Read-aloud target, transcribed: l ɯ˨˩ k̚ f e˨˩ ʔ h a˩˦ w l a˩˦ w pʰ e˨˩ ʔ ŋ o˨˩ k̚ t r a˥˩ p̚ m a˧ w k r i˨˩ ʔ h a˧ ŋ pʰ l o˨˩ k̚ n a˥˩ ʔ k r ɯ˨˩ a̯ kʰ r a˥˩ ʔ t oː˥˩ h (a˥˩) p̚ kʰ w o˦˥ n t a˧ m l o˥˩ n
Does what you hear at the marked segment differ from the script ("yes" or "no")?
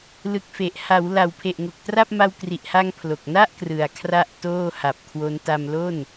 yes